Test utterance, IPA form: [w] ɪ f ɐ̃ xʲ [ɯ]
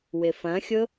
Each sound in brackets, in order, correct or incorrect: correct, incorrect: ʊ

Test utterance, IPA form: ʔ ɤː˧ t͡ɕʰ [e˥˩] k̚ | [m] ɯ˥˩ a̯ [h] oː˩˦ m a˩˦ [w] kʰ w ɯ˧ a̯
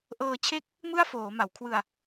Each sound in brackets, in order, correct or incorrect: correct, correct, incorrect: f, correct

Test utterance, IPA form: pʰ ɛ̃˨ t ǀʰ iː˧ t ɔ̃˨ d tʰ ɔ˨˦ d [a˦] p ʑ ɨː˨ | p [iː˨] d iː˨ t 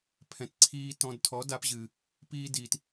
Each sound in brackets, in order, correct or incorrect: incorrect: a˧, incorrect: iː˧

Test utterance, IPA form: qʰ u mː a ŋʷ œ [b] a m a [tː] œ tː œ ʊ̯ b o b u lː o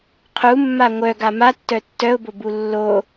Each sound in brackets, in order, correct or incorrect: incorrect: ɡ, correct

